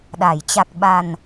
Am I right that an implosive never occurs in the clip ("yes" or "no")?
no